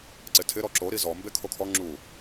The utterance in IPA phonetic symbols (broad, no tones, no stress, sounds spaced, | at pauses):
ǀ ɪ tʰ ɪ ɾ ɔ ǁ o ɾ i z ɔ m b e kʰ o kʰ ɔ ŋ͡ǁ u